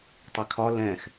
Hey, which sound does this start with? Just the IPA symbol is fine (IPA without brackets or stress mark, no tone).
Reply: tˤ